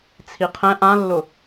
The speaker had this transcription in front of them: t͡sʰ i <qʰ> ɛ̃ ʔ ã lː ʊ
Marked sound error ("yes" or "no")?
no